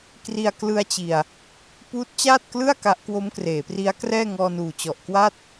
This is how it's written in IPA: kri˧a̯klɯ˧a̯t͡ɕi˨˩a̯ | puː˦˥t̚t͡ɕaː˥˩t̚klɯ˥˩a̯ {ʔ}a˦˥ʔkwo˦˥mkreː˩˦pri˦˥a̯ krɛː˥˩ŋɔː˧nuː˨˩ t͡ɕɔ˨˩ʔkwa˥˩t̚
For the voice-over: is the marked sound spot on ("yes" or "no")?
no